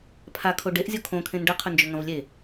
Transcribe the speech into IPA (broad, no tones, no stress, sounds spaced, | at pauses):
pʰ a kʰ o ɖ e ʔ zʲ o kʰ õ kʰ ẽ n ɖ ɐ qʰ ɵ n d͡ʒ ɵ ŋ ɐ̃ v lʲ e